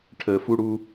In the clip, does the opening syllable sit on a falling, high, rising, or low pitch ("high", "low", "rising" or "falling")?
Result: low